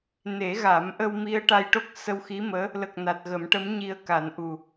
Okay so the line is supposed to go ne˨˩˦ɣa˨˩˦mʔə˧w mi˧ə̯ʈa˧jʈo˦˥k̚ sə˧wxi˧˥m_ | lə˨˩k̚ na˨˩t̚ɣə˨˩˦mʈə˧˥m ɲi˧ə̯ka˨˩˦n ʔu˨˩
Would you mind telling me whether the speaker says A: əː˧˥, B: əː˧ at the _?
A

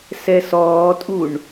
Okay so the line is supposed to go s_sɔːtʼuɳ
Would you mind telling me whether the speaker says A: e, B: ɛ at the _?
B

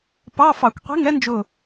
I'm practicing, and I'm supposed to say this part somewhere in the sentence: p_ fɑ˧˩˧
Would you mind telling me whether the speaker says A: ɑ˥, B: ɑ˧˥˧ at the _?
B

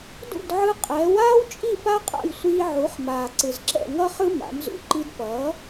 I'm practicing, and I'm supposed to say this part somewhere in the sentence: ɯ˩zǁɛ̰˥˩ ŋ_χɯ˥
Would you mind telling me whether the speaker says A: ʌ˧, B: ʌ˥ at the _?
B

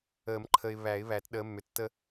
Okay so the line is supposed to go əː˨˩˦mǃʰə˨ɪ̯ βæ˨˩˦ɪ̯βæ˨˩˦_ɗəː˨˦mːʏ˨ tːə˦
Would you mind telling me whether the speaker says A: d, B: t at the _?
B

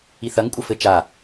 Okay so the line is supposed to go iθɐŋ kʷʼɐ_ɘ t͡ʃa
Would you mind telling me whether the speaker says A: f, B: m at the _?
A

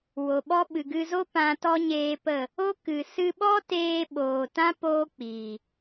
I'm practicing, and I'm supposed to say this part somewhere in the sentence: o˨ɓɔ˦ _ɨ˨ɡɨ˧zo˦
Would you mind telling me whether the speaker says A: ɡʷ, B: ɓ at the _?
B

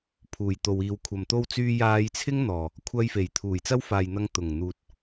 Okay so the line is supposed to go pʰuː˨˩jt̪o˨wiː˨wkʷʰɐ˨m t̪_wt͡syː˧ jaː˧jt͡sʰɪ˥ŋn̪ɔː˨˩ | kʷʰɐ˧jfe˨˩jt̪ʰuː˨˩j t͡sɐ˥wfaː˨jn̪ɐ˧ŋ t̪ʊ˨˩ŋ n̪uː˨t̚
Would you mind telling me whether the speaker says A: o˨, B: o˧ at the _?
B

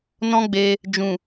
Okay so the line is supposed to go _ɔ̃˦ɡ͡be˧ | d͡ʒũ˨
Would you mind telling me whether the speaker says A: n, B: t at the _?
A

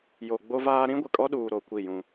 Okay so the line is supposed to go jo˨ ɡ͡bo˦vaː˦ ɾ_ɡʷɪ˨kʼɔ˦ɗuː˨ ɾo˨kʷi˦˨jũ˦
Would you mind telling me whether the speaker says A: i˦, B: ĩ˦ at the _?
B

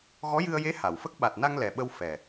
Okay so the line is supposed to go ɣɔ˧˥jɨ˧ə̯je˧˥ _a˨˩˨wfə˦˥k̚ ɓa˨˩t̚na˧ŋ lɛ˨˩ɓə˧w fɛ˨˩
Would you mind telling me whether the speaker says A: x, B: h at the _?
B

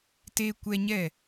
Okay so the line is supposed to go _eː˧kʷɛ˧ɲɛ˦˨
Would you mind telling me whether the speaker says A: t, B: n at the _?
A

